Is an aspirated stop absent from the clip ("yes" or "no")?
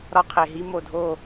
no